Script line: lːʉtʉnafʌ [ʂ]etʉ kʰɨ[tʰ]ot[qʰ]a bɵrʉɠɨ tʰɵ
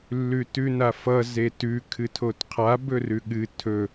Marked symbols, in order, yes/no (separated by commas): no, yes, yes